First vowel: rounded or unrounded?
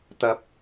unrounded